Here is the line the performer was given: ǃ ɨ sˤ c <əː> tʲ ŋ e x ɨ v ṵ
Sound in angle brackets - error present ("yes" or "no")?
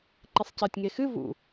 no